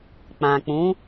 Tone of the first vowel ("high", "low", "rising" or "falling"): low